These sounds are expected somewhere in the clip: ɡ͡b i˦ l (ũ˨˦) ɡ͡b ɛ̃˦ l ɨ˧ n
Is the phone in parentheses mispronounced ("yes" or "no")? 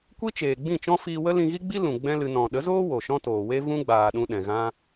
yes